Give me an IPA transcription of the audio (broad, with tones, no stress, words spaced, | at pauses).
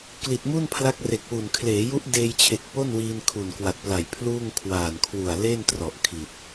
kli˨˩t̚mu˥˩npʰla˦˥k̚ re˨˩k̚wu˨˩n kʰleː˩˦ju˦˥ʔ deː˧jt͡ɕʰe˨˩k̚ po˥˩nwiː˧n kʰu˨˩nkwa˨˩t̚pla˨˩j pʰluː˥˩ŋ kʰwaː˨˩nkʰwu˨˩a̯ le˥˩n trɔ˨˩ʔkʰi˨˩t̚